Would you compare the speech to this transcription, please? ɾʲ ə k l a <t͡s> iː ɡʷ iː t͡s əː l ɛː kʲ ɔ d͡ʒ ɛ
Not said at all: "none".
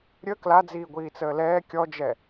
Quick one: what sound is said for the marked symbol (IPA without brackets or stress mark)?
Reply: d͡z